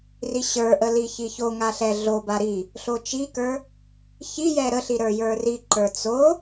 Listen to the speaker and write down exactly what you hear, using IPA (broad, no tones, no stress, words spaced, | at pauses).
riɕə˞ʔə liçiçoŋa ɬɛɮoba ɾi | ɬot͡ʃikə˞ | çijɛ ɾəɬi ɾə˞jə˞riǃə˞ t͡so